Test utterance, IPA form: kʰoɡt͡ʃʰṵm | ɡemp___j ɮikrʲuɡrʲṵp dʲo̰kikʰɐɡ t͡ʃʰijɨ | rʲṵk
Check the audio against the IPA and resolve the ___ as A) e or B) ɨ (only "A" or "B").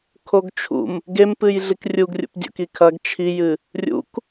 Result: B